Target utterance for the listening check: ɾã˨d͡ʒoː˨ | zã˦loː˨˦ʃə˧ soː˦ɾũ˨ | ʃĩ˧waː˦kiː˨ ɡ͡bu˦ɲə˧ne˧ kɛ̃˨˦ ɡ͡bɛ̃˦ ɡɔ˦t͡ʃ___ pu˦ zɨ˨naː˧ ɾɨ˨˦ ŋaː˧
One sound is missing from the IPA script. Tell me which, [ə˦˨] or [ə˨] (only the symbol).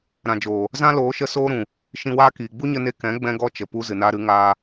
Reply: ə˨